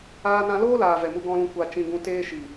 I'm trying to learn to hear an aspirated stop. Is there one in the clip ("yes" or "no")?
no